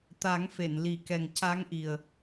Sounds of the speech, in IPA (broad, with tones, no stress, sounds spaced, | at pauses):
t̪ a˨˩˦ ŋ f e˨˩˨ n l i˨˩˦ k ɛ˨˩ ŋ c a˧˥ ŋ ʔ i˨˩ ə̯